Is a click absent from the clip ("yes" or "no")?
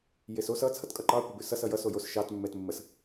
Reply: no